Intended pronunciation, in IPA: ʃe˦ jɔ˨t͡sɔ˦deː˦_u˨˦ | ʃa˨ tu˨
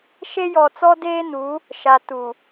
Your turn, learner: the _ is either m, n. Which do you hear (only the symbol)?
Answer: n